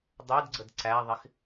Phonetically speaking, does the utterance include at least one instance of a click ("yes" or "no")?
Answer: yes